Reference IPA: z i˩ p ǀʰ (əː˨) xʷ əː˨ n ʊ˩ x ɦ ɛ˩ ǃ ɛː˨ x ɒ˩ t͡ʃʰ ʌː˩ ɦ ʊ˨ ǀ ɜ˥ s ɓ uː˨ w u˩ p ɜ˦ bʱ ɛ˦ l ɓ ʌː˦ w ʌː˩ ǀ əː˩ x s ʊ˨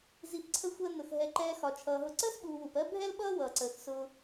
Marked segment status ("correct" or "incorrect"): incorrect